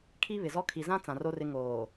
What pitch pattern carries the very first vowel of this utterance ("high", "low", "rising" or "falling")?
high